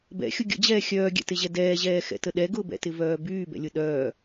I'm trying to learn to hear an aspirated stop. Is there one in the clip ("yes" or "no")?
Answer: no